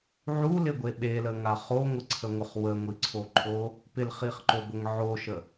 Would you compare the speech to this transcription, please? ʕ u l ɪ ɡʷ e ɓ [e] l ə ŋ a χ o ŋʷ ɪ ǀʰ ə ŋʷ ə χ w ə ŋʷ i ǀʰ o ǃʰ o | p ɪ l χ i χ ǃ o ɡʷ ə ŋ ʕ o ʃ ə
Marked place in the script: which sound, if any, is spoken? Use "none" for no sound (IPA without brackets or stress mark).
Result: e